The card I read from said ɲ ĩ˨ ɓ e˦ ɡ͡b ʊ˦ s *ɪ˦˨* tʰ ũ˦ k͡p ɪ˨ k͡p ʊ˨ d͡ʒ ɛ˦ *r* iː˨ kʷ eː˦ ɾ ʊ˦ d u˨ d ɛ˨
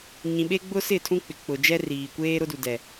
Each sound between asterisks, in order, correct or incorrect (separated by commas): correct, correct